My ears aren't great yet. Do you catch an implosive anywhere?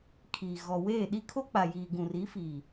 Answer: yes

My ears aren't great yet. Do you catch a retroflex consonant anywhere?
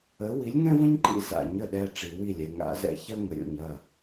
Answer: yes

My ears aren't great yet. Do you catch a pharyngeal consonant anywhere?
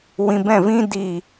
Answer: no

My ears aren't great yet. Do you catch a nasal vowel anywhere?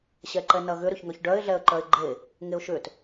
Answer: no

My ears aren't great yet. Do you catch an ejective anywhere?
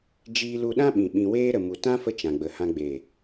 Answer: no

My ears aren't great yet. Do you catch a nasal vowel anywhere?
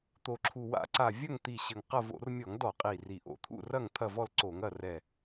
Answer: no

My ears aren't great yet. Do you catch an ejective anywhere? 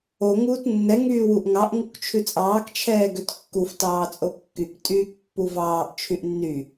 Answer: yes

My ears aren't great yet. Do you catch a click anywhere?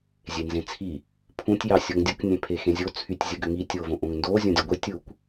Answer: no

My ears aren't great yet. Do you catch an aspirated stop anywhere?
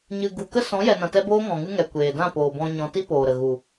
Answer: no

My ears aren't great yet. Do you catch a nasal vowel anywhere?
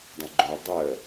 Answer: yes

